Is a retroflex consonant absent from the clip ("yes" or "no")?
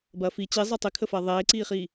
yes